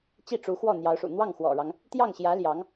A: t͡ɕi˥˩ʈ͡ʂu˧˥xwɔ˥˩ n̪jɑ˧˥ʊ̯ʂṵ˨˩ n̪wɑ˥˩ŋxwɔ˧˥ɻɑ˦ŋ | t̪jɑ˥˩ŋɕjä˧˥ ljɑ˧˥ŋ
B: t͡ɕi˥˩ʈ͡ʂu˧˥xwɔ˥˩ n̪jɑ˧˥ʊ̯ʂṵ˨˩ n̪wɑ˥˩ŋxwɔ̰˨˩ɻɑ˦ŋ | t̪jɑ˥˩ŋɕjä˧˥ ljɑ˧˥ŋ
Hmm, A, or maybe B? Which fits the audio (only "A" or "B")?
B